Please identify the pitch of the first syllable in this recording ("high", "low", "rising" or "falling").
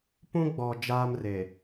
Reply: high